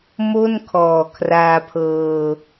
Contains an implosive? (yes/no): no